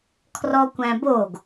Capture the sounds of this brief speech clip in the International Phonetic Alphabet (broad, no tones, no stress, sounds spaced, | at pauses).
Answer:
kʰ r ɔ kʷ æ̃ b o ɡ